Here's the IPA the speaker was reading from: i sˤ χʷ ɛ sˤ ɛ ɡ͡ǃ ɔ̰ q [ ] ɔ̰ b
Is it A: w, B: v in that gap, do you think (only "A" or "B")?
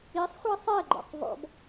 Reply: B